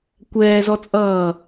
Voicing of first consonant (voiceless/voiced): voiceless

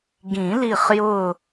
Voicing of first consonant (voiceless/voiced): voiced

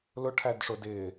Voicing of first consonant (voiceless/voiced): voiced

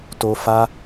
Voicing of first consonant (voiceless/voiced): voiceless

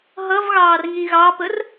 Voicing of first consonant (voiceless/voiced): voiced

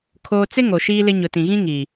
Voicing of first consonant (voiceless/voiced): voiceless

